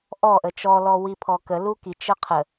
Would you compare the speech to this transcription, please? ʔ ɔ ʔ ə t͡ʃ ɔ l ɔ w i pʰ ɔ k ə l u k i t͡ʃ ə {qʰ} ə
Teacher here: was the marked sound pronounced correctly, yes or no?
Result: yes